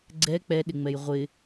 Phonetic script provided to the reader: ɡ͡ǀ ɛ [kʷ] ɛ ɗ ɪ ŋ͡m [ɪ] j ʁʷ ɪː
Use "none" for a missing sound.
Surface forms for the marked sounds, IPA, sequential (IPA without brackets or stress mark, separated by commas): k͡p, ɛ